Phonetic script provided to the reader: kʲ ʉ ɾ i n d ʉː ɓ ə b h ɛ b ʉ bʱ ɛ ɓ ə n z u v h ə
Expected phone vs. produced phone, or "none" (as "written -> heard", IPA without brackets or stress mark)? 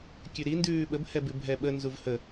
none